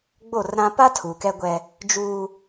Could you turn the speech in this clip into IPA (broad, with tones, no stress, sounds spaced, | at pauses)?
ɡ͡b o˦˨ r ɾ ã˦ p a˦ tʰ u˨ k ɛ˦ ɡʷ ɛ˦ | d͡ʒ uː˦